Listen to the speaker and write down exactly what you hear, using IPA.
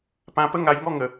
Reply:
p ã˧ p ə˥˧ ŋ a˧ j ŋ ɔ˥˧ ŋ ə˧

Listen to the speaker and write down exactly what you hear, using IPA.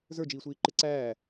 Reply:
z ə˞ d͡ʒ iː sʷ iː ǃ ɪ ǀ æː

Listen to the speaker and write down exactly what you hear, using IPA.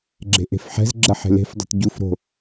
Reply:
ɡ͡ǁ e̤ ʔ e̤ f ħ ɛ̤ z ɡ͡ǁ ɐ ħ e̤ l e̤ f dˤ ɛ̤ t ɟ u f ɾ o̤

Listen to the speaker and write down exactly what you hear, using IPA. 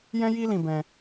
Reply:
j ɛ̃˦ j i˦ l ĩ˧ b ɛ̃˧

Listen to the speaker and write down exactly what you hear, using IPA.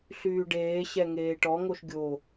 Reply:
ɬ yː ɖ eː ɕ ɛ ŋ eː ʈ ɔ ŋ o ʃ ɡʲ o

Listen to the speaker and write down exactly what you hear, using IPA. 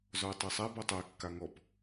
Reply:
z ɔ ɪ̯ tˤ ɛ sˤ æ b ɔ tˤ æ kː a ŋ ɔ p

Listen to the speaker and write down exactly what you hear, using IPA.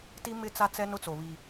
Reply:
t i˦ m ɪ˦ t͡s a˦ t͡s ɛ˦ n ʊ˦ t͡s o˨ β i˨

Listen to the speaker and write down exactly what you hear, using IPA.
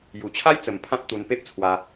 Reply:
j u˨˩ t͡ɕʰ a˦ j t͡s ə˨˩ m pʰ ã˦ p̚ t̪ u˧ n p e˦ p̚ t͡sʰ w a˧

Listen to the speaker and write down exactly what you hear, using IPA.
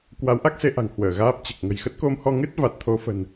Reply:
k w a˨˦ w ʔ a˦˥ k̚ s e˧ ʔ a̤˨˩ ŋ h w əː˧˩ ɣ aː˦˥ p̚ t͡ɕ ɨ˨˩ k̚ ŋ ə̤˨˩ j x ə˦˥ t̚ k o˧ m h ɔ˧ ŋ ɨ˦˥ t̚ v a˨˩ t̚ t̪ʰ o˨˦ f ə̤˨˩ n

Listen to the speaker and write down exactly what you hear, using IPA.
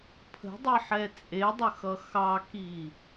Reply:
pʰ ə̤ dˤ i ħ ɛ t͡sʼ e dˤ ə x ʌ x ɑ k i

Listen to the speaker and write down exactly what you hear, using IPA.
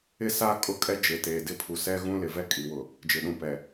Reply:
ɪ˦ s a˦ kʼ ʊ˦˨ kʼ ɛ˦ d͡ʒ e˨ t eː˨ d ɪ˦ pʰ u˨ s ɛ˦ ɣ ũ˦ l ɪ˨ v ɛ˦ kʼ i˨ w ʊ˨ | d͡ʒ ɪ˨ ɗ ũ˨ p ɛ˨

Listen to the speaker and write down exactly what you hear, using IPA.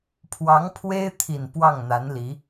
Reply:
pʰ w ɑ˧˥ ŋ pʰ w e˥ ɪ̯ t̪ʰ i˨˩ n p w ɑ˥˩ ŋ n̪ a˧˥ n l i˧˥

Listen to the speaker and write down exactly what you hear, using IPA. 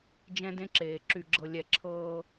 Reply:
d͡ʒ ɛ̃˦ d ẽ˦ ǁ eː˨ ǁ y˨ ɡ͡ǁ ɤ˨ lʲ ɛ˨ ǁʰ ɤː˦

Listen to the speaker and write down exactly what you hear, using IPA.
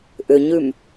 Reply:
ʔ ʏ ɲ ʉ m

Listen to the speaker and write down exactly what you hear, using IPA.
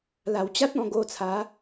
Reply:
l a˨˩ w t͡ɕ a˦ t̚ ɔ̃˧ ɡ o˧ t͡sʰ a˨˦

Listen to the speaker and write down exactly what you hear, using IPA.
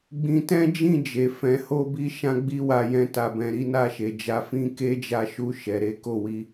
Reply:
ɡ͡b ĩ˧ t ɛ̃˦ d͡ʒ ĩ˦˨ d͡ʒ e˨ f ɛ̃˨ h o˧ b i˧ ʃ ã˦ ɡ͡b i˦ w a˧ j ɛ̃˧ t a˨ b ɛ̃˨ ɾ i˨˦ n a˦˨ ʃ e˨ d͡ʒ a˧ f ĩ˦ k e˦ d͡ʒ a˧ ʃ u˧ ʃ ɛ˨ ɾ e˨˦ k o˦˨ w i˧

